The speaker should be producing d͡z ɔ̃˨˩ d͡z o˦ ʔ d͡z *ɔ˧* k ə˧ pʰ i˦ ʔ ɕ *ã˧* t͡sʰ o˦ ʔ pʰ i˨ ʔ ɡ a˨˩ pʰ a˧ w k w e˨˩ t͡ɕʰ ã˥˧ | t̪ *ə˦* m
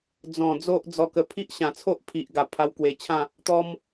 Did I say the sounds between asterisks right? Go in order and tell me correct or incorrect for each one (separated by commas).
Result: correct, incorrect, incorrect